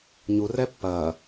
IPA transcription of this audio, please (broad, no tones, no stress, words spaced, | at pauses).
ɲurɛ pːɐ